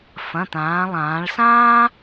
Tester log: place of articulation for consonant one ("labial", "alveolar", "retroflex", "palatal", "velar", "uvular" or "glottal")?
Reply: labial